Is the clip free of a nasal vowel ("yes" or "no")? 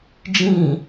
no